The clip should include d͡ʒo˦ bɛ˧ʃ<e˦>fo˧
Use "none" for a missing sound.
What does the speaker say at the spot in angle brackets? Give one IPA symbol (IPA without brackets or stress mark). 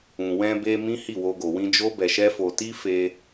ɛ˦